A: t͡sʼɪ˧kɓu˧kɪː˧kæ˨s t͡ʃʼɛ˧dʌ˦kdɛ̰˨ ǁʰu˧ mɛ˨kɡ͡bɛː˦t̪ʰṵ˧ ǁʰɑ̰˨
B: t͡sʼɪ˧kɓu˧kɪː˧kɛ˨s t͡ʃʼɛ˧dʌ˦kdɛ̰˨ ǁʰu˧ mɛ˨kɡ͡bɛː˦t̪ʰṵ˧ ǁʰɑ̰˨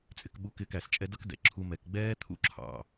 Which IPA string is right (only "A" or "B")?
A